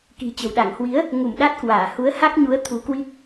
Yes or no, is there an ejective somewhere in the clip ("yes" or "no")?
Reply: no